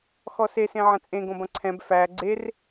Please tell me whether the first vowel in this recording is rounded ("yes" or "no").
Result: yes